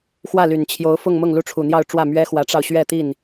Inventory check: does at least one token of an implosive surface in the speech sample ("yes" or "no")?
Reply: no